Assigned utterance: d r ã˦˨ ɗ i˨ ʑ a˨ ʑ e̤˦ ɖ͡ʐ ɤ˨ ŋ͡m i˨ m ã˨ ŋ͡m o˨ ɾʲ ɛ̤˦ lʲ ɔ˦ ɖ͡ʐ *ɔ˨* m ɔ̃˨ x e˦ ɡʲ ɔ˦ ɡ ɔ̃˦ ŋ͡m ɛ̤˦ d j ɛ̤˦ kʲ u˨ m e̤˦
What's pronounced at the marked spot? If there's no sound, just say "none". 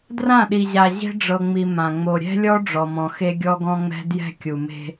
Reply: ɔ˨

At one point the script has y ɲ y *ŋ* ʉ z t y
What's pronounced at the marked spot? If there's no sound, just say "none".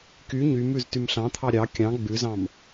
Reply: m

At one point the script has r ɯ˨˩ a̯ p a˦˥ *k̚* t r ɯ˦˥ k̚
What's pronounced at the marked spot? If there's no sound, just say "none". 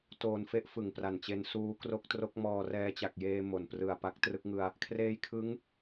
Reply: k̚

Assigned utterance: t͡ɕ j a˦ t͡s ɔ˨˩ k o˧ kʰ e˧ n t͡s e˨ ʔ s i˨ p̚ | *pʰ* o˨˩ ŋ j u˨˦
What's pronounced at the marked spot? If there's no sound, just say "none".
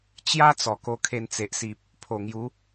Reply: pʰ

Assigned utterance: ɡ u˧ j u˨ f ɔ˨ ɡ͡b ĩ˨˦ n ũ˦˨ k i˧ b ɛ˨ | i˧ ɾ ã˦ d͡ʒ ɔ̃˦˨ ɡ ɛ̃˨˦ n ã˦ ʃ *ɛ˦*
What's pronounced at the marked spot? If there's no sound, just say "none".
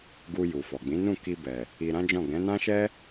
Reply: ɛ˦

